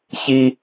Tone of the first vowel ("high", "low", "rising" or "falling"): high